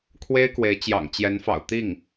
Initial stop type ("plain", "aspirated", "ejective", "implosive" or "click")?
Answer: aspirated